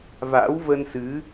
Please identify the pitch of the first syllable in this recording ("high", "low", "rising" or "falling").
rising